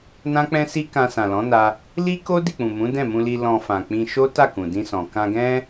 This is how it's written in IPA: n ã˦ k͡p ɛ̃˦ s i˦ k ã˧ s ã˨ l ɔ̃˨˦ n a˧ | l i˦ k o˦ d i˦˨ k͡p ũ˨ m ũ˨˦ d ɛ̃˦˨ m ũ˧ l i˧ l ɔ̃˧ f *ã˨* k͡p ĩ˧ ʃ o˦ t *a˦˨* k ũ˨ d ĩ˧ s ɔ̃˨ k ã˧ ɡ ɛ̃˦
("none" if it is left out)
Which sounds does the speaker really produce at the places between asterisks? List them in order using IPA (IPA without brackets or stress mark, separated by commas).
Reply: ã˨, a˦˨